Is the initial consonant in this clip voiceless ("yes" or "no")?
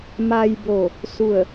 no